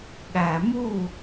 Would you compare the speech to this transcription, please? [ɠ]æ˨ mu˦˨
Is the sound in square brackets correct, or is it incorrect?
correct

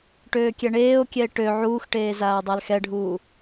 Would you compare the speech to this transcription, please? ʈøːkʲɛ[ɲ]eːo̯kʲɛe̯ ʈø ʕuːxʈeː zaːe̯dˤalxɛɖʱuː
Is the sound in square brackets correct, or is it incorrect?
incorrect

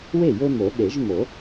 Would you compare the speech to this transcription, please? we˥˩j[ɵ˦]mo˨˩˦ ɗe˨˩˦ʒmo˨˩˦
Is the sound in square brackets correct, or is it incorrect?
correct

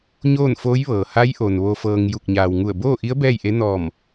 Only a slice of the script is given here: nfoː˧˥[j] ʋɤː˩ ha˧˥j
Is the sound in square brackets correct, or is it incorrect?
correct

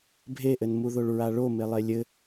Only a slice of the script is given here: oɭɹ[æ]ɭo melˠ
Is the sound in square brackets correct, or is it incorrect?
incorrect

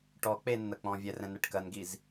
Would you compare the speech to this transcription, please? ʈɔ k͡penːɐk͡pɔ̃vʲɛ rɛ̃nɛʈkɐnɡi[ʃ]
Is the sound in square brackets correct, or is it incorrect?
incorrect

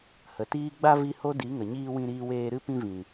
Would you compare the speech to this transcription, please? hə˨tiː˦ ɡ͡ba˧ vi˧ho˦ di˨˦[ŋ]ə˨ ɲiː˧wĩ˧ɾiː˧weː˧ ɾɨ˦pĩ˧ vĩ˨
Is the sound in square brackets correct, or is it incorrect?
correct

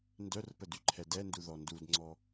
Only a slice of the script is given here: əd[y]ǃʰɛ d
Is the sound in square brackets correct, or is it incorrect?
correct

